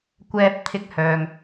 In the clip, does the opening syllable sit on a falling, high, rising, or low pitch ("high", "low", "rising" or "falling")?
high